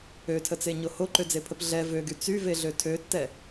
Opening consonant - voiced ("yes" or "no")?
no